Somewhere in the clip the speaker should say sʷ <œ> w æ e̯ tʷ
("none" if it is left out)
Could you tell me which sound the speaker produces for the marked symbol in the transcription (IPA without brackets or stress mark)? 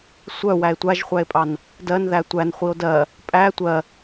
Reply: œ